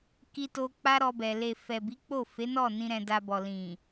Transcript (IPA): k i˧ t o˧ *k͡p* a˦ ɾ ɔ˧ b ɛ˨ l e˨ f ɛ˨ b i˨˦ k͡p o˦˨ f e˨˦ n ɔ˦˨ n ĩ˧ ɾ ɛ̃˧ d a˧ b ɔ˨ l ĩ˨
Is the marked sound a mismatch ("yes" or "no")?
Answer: no